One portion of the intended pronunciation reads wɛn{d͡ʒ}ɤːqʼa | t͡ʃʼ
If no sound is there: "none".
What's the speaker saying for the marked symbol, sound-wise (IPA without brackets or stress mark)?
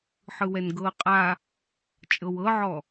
ɡ